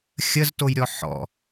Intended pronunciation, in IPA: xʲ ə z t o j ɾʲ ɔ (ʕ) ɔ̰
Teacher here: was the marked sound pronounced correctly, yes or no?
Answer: no